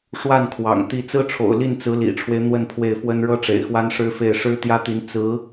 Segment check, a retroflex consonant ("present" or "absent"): present